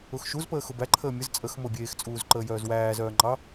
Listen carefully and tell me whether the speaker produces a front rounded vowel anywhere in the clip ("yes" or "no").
yes